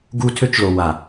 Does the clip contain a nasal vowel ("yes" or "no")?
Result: no